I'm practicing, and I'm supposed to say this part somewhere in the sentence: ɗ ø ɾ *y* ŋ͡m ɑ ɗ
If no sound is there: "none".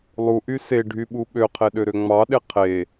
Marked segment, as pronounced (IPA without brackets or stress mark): ø